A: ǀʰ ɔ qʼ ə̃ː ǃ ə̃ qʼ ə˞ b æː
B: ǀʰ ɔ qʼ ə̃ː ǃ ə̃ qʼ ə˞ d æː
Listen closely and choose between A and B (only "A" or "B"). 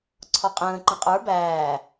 A